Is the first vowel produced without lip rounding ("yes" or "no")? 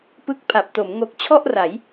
yes